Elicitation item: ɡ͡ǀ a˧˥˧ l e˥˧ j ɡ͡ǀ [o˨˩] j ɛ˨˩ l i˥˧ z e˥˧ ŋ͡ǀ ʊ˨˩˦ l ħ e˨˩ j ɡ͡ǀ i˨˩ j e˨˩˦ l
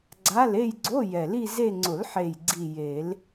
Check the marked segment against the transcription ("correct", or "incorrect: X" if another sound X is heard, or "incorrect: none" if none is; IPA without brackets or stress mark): incorrect: o˧˥˧